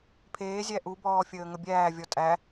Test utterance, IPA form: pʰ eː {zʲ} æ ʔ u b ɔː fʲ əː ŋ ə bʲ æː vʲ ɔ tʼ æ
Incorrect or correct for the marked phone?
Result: correct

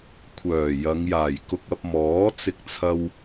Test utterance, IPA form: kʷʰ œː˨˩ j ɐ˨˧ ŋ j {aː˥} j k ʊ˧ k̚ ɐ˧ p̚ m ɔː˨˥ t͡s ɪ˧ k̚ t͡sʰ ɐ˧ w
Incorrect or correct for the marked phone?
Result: incorrect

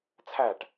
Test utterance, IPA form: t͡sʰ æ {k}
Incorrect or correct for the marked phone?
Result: incorrect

